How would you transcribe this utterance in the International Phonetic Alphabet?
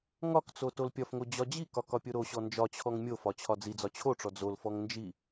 ŋ ɒ k t͡s o t o l pʲ ɒ f ŋ o d͡ʑ ɒ d͡ʑ i k ɒ k ɒ pʲ o ɾ o ɕ ɔ n d͡ʒ ɒ t͡ɕʰ ɔ ŋ mʲ o f ɒ t͡ɕʰ ɒ d͡z i d͡z ɒ t͡ɕʰ o ʈ͡ʂ ɔ d͡z o l f ɔ ŋ n d͡ʒ i

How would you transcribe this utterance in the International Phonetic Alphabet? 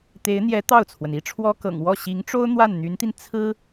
t̪ e˧˥ ɪ̯ n̪ j ɛ˧˥ t̪ ɑ˥˩ ʊ̯ t͡sʰ w ə˩ n i˥ ʈ͡ʂʰ w ɔ˥ k ɤ̰˨˩ ŋ w ɔ˥˩ ɕ i˧˥ ŋ ʈ͡ʂ o˥ ʊ̯ n̪ w a˥˩ n n̪ y˧˥ n t̪ i˧ n t͡sʰ ɹ̩˥

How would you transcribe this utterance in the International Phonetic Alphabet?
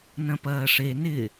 n ɐ̃ p ɐː ʂ e n ɪ

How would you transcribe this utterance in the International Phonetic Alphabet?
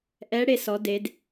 ʔ ɛ˧˥ ɽ e˧ s ɔ˩˧ d e˩˧ d

